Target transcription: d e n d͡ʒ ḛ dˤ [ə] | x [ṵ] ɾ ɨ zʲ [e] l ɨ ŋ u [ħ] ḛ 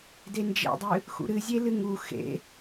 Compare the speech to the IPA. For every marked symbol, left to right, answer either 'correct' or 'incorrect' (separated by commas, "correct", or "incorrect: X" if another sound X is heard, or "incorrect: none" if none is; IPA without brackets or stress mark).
incorrect: ɨ, correct, correct, incorrect: x